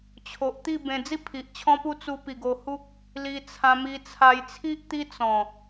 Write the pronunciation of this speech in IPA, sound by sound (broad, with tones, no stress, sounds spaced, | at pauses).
t͡ɕʰ o˨ ʔ t̪ i˥˧ b ẽ˧ d͡z i˥˧ pʰ i˨ ʔ t͡ɕʰ ɔ̃˦ p u˦ t͡s u˧ p i˨˩ ɡ o˧ h u˦ k̚ | l i˧ t͡sʰ ã˧ m i˧ t͡sʰ a˧ j t͡sʰ i˦ ʔ t̪ i˦ t͡s ɔ̃˨˩